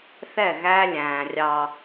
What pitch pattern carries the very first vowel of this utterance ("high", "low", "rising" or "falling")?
falling